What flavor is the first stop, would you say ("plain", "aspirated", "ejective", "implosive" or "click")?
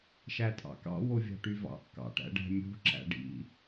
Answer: ejective